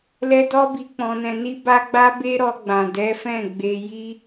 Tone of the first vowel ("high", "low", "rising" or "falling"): high